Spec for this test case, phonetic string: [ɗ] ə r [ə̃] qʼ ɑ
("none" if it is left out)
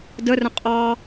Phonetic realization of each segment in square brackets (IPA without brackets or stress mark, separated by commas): d, ə̃